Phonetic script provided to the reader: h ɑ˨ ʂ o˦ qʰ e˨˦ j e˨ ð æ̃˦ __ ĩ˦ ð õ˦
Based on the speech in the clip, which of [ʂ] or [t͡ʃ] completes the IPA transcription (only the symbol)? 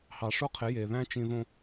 t͡ʃ